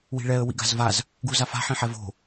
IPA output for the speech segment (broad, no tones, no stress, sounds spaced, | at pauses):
w i̤ ɭ ɛ ə̯ w ḭ ɡ a̤ z v a z | ɡ u z a f a̤ ħ ĩ ħ ɛ v o̤